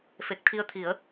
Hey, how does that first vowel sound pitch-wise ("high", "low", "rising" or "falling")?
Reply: low